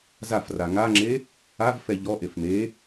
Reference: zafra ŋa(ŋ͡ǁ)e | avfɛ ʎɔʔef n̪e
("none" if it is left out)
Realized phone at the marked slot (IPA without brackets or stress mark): ŋ͡ǁ